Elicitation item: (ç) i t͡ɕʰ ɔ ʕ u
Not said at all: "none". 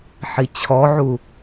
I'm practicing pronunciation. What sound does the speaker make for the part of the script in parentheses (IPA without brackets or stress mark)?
ħ